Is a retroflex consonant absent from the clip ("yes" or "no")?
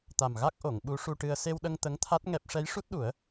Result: no